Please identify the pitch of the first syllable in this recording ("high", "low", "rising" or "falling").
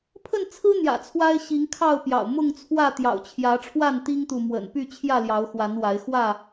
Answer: falling